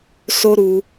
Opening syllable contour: high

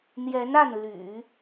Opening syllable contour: rising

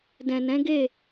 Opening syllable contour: low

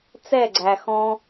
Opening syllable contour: falling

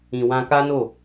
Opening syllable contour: low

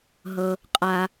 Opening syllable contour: low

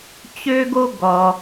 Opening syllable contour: high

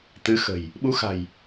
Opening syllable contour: rising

